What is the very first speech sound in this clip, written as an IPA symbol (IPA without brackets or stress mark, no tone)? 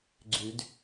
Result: ɡ͡ǀ